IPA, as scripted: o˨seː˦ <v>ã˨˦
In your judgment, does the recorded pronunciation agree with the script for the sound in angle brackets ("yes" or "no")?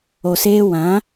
no